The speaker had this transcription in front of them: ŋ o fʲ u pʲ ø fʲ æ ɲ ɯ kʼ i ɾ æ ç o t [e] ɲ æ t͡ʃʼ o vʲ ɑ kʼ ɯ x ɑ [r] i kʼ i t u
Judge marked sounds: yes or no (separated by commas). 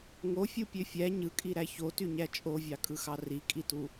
no, yes